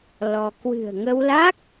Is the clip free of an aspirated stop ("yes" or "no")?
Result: yes